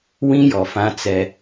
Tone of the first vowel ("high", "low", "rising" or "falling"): high